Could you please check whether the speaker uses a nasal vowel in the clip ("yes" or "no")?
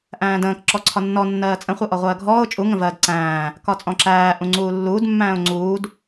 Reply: yes